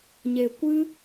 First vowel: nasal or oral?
oral